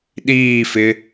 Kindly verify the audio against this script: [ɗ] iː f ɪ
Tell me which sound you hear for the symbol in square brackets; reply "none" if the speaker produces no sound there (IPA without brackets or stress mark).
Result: ɗ